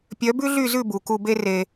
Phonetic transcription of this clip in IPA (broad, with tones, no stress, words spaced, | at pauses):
pʲœ˨˦bʉ˦ɮy˦˨zʉ˦˨ bu˨ku˧be˦ re˧